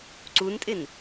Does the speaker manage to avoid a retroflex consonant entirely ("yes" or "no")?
yes